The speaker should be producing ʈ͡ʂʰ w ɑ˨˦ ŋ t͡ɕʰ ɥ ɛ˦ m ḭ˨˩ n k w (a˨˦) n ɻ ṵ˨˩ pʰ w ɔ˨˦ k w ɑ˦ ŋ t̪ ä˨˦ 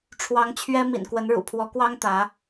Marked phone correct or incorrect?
incorrect